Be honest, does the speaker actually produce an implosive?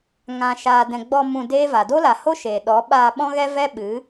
yes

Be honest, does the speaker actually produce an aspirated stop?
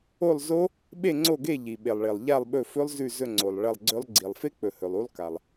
no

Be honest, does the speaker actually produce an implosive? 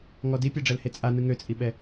yes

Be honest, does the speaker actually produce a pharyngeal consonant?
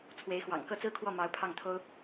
no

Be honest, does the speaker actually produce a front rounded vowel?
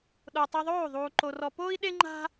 no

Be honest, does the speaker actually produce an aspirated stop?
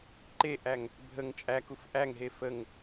no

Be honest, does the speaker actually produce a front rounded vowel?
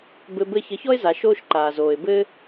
no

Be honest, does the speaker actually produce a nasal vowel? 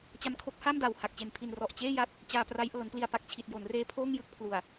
no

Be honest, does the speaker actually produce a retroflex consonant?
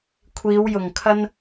no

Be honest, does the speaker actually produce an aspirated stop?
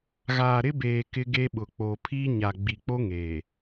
yes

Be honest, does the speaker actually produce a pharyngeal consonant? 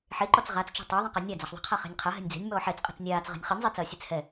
yes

